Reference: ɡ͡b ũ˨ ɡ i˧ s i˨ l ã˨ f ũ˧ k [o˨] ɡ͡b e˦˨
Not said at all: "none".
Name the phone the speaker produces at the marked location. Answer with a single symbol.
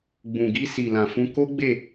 o˦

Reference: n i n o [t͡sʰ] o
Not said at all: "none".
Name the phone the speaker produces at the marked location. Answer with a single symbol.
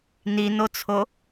t͡sʰ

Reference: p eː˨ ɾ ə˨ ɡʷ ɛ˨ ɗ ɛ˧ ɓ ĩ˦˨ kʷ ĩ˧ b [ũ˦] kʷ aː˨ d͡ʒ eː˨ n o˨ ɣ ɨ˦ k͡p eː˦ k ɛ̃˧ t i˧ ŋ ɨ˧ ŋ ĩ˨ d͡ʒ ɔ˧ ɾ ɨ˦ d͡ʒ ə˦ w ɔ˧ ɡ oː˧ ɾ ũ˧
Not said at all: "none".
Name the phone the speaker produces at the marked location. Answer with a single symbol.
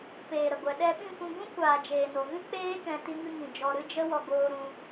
ũ˦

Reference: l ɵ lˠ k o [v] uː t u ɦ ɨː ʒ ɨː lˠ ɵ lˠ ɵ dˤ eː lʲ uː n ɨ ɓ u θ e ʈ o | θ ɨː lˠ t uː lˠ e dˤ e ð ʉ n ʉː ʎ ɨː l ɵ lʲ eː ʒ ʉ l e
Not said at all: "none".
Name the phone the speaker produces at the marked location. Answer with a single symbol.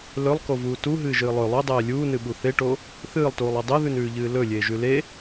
v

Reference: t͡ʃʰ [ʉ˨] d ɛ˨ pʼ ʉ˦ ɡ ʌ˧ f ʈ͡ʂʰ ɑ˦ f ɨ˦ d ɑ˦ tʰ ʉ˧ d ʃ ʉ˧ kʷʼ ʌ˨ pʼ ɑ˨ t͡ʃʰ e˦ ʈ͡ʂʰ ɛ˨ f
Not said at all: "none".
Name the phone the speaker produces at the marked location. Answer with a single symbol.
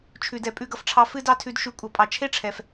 ʉ˨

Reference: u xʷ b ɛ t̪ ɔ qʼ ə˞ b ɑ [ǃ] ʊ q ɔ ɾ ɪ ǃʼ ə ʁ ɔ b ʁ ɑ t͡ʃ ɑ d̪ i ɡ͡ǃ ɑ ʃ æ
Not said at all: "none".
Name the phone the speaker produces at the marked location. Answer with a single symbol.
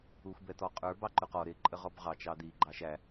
ǃ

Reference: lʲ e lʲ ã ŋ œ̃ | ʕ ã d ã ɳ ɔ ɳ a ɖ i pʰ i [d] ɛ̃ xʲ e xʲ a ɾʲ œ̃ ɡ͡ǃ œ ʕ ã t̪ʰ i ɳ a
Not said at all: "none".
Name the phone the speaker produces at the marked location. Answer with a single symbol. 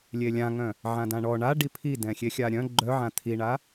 d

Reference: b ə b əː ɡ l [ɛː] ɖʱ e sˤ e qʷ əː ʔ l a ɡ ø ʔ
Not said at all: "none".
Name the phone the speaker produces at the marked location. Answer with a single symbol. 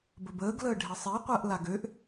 əː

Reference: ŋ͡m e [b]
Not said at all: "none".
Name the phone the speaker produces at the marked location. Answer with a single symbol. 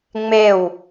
w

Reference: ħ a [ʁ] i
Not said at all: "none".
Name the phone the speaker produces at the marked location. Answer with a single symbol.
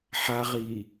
ʁ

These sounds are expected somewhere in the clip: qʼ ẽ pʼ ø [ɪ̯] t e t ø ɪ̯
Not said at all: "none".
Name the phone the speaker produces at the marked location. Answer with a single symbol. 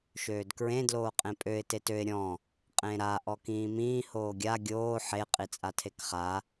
ɪ̯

